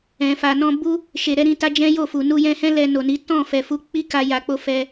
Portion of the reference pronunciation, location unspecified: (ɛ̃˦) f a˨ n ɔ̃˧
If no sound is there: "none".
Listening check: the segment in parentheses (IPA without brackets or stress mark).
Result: ɛ̃˨